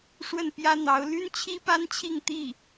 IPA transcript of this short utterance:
ʂwə˥˩npjä˥n̪ɑ˧˥ʊ̯ ly˥n t͡ɕʰi˥pa˥nt͡ɕʰi˥˧ŋ t̪i˥˩

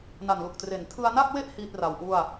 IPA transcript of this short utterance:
na˨˩nlu˨˩k̚tre˩˦n tʰɯ˧a̯na˥˩k̚we˥˩ʔ hiː˥˩t̚ra˩˦wʔu˥˩a̯

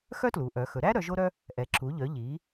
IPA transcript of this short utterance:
xœ˥tlu˩˧ʔœ˩˧xɵ˩˧ ɾæ˥ɾœ˩˧ ʒo˥ɾœ˥ | ʔɛ˩˧ ǁu˩˧ʎœ˩˧ʎi˩˧

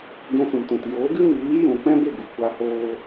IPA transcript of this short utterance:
ɡɛ̃˧sũ˨mtũ˨t joː˨˦ɡɨ˦miː˨˦ jũ˨ k͡pɛ̃˦be˦˨ ɡu˨kʷa˧hoː˧

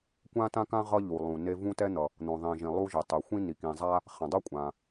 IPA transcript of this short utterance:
kʷã˥tã˥kã˥ ʁʌ˥ʎu˩ lˠũ˩ne˥ vũ˥tɛ˥n̪ʌ˩ | n̪õ˩ðˤĩ˩ʒĩ˩ lˠu˥ʒe˩ tˤɛ˩ xʷĩ˥ni˩kĩ˩zˤa˥ | χɛ̃˩dˤʌ˥kʷʼã˩

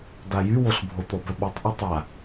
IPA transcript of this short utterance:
dajywoɬbʱo t̪ɔbœɓɛtˤ ʔɔtˤa

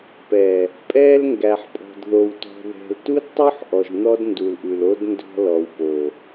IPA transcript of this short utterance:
pɛ˨ | pʼɛː˦lŋɡæ˨ħpʼɔ̤˨dðo˨w tɔ̤˨ðɛ̤˨ltu˦dtˤu˦ħ ʔɔ˨ʒn̪ɔ˦d ndu˨lʔʉ˨lo˦d ndɔ̤˦lɔ˨wpo˨

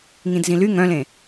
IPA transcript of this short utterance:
ŋĩdzĩly ŋœ̃lẽ

